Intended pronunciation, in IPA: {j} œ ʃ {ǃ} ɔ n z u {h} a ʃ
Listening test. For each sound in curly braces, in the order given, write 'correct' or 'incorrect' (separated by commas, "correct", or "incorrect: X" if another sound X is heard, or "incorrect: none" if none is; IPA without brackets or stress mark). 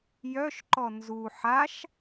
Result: correct, correct, incorrect: ħ